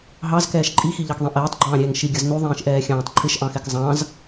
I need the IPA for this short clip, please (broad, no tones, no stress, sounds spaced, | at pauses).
ɦ ɑ z k ɛː ʃ ǃʼ i x i ʎ ɑ k ðˤ ĩ ʔ ɛː tˤ ɡ͡ǃ ɑ̃ː ɾʲ ɛː ŋ ʃ i ɡʲ ʌ z n u ðˤ ĩː ʃ ʔ ɛː xʲ ɑ̃ː tˤ ǃʰ ɪ ʃ ʔ ɑ̃ x ɛ k zˤ ɑ̃ z